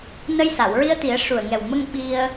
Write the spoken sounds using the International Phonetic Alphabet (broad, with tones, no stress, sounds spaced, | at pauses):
n ə˧ j s a˨˩˨ w ɹ i˧ ə̯ t̪ i˨˩˦ ə̯ ʂ u˨˩ ə̯ ŋ ɛ˨˩ w m ə˧ ŋ ɓ i˧ ə̯